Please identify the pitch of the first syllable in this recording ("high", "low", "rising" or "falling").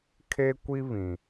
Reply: high